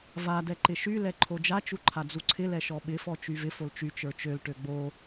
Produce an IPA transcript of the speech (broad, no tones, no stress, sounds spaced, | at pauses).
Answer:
v a d ɛ ǃ ɪ ʃ y l ɛ ǃʰ o d͡ʒ a t͡ʃ u ǃʰ a d͡z u ǀʰ ɪ l ɛ ʃ ɔ ɓ ɪ f ɔ t͡ʃ y v ɪ f o l t͡ʃ y t͡ʃ ə˞ t͡ʃ ø l ʈ ø ɡ͡b o